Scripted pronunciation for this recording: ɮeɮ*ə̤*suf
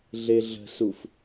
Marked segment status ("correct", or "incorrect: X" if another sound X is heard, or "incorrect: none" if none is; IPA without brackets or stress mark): correct